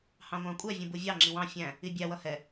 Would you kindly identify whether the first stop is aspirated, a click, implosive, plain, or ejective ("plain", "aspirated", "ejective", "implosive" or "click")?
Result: ejective